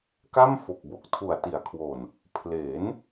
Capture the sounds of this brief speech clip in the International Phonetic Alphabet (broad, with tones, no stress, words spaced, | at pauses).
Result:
ka˥˩m fo˨˩k̚bo˨˩k̚ tʰu˨˩a̯ti˩˦a̯kʰwo˨˩n | pʰle˩˦n